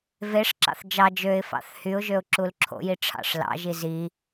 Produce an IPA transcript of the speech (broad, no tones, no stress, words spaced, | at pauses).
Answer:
veʂǁɑ̰θ d͡ʒɑ d͡ʒøɪ̯ fɑ̰θhyʊ̯ʒøʊ̯ ǁulǁʰo̰ji ʈ͡ʂʰɑ̰ʂlɑ̰ʒi zi